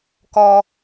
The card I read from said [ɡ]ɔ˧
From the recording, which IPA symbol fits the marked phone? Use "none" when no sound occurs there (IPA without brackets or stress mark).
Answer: k